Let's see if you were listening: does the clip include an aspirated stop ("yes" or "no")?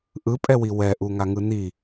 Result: no